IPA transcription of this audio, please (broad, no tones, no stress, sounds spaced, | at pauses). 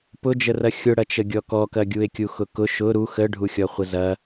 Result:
p ʊ d͡ʒ ə r ɐ xʲ ʊ ɽ ɐ t͡ʃ ə ɡʲ ɔ k ɔ k ɐ ɡʲ u e̯ kʲ u x ʊ k ʊ ʃ ʊ ɾ u x ə ɖʱ u xʲ ɔ χʷ ə z ɐ